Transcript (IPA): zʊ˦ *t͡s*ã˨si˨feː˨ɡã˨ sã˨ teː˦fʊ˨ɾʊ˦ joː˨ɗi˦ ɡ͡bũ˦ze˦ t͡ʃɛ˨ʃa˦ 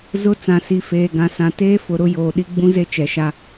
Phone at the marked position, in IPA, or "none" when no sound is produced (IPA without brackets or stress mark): t͡s